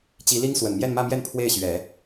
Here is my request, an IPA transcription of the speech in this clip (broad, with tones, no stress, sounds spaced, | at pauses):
t͡ɕ i˧˥ l i˥ ŋ s w ə˨˩ n m j ɛ˥˧ n m ä˥˧ m j ɛ˥˧ n pʰ w e˥˩ ɪ̯ ɕ ɥ ɛ˨˩˦